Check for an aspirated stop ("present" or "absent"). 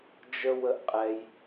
absent